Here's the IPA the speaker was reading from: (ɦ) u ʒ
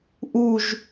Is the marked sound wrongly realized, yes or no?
yes